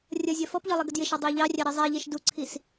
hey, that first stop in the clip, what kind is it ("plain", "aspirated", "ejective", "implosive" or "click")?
plain